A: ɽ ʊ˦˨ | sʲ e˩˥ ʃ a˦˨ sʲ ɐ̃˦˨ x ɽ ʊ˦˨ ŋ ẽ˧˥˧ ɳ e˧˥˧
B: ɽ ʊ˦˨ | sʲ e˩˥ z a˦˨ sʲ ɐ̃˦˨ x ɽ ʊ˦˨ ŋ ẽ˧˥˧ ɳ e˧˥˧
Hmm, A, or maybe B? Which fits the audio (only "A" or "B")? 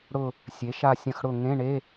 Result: A